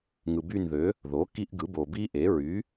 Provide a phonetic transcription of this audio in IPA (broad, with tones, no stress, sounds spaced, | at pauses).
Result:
ŋ ɯ˨ b y˦˨ n ð ø˩˥ | ð o˩˥ k i˦ ʔ ɡ ɯ˩˥ b o˨ b i˦ ʔ e˩˥ ɹ y˩˥